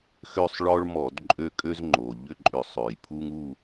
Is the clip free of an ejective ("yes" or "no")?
no